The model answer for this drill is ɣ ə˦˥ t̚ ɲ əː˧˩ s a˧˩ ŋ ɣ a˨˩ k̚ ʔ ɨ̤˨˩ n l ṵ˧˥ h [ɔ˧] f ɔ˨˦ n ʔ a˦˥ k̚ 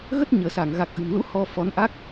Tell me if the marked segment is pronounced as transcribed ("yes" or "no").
yes